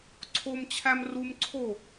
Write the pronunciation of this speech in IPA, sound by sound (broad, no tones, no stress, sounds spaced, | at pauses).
ǀʰ o m t͡ɕʰ æ m r u m ǀʰ o